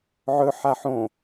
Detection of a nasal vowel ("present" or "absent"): present